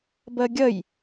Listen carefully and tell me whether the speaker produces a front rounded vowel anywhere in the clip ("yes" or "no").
no